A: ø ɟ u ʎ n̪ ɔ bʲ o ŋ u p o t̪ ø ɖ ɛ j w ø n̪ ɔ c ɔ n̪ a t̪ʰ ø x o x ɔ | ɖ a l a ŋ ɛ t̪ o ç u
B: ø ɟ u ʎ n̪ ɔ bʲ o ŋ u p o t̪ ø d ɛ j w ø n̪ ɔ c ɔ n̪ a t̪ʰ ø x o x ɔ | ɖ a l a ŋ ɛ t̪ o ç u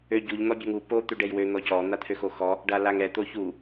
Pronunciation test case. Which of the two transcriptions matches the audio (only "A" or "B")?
A